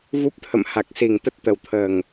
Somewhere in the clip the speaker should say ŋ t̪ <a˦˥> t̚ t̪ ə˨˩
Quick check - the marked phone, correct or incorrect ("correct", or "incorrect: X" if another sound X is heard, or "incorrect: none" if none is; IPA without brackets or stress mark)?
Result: incorrect: ə˦˥